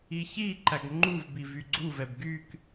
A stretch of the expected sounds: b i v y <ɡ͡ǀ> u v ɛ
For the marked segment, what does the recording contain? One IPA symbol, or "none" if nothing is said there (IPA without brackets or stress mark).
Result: ɡ͡ǀ